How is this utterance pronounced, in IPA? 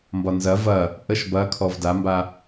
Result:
mbɒnzɐ vɐ | ʔəʃ bɐkʰɔv damba

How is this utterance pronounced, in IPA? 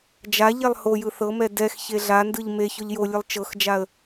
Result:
d͡ʒaʎɛlˠ hojɯ θɤmɛ dɛx çeɮandɯʎ me çɔʎjolʲɯlˠ t͡ʃɤxd͡ʒaə̯

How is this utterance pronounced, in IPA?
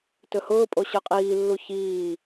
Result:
tɵhʊːpʼo ɕə˞qʼiːlːu çiː

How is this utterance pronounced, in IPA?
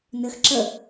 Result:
nɘx ǁə

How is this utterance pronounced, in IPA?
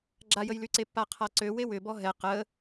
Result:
ɡ͡ǁajəjlyǀe pːaqʰaǀø wewʏbɔ ɦɛ qə

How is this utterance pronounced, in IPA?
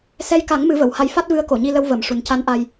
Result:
sɛ˧jka˨˩˦ŋ mɨ˨˩˦və˨˩˨wha˧j fa˦˥t̚vɨ˧˥ə̯ ko˨˩˨ɲi˧lə˧w və˨˩˨m ʂu˨˩nca˧˥nʔa˧j

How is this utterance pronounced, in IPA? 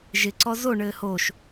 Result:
ʒɪ ǀɔzo ɳɘːhoʃ

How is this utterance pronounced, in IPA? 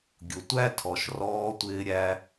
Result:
ɡʲʊ˨tʷæ˦ tʰɔ˨ʃrɔː˧tʷɪː˧ ɾʲæ˧

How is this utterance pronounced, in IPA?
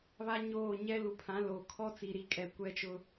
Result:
βa˦ ɲoː˦˨ ɲɛ˦lu˨ pʰã˨˦lo˨kʰɔ˦ t͡si˨ɾi˨˦kʼɛ˨ kʷɛ˦t͡ʃʊ˦

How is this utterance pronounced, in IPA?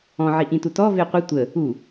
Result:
ɔ̃ ʕiʔĩtutɔ veqʷi tʷə | u

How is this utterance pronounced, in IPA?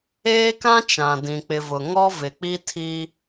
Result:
eː˦kã˦ t͡ʃã˨dĩ˨ k͡pɪ˨vʊ˨ ŋɔ˦vɪ˨k͡pi˦tʰi˦

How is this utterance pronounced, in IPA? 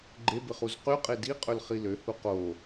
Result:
ɡ͡ǃebɪχuz qyqʼe diqʼɵlχi løhu qo

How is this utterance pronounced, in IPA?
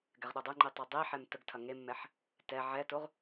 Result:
ɡɛʁɗodˤəŋ͡ǃi tˤɛdˤiħɛm təɡtʰɐ ŋemːɛħ | tɛ ʕɛtoʁ

